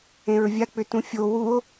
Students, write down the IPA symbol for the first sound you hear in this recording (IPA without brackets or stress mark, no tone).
ẽ